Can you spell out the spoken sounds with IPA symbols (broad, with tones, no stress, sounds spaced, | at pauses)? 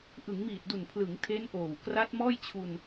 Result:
ʔ ɯ˩˦ ŋ m iː˨˩ t̚ d u˨˩ n pʰ l ɯ˩˦ ŋ tʰ e˦˥ n ʔ oː˨˩ w k r a˦˥ t̚ m ɔː˥˩ j t͡ɕʰ u˧ n